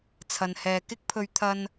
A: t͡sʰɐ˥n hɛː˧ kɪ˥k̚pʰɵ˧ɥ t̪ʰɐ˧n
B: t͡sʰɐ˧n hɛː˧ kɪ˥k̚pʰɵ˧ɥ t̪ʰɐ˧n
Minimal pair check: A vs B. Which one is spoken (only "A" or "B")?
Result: B